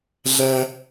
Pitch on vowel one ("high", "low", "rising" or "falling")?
high